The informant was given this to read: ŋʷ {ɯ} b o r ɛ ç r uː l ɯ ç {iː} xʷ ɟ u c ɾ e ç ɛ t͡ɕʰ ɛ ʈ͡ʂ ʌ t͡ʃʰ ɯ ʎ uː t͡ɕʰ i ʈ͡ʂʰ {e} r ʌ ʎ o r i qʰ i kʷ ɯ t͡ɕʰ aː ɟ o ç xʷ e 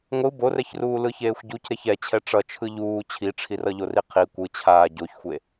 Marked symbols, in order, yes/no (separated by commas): yes, no, no